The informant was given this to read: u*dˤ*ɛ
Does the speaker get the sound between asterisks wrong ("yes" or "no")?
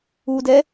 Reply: yes